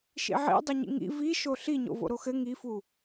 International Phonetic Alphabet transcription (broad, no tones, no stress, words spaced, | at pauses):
ʃḭʕḭ dˤʏɲḭŋḭ vi ʃoɬi ɲo̰vo̰ɾoxɘ ŋifu